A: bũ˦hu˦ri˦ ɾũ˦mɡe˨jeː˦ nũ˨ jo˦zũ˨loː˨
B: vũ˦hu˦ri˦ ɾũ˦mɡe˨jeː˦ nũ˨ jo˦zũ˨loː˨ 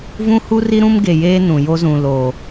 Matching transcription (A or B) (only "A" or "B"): B